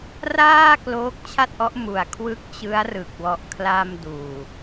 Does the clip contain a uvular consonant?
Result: no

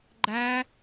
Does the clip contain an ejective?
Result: no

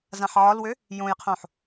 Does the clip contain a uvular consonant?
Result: yes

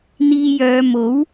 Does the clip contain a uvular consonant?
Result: no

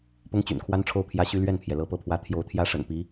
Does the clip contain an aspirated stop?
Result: yes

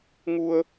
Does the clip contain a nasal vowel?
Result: no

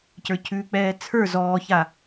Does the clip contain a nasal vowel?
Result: no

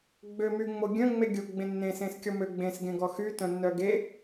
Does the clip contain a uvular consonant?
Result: no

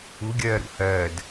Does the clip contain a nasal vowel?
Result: no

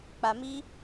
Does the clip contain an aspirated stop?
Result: no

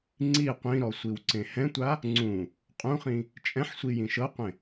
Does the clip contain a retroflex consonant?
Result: no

